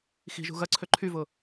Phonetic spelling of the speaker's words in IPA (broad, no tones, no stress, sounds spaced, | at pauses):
x i̤ ʒ ṳ ɣ ɐ ǀʰ ø ǃʰ y v ʊ